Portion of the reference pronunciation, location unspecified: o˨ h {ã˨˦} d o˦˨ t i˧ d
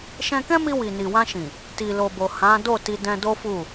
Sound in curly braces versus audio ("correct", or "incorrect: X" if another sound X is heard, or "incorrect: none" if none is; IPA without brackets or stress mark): correct